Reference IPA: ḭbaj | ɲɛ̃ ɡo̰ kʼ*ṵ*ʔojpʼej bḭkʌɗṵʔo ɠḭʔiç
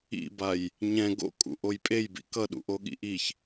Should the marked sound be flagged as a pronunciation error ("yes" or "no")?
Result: no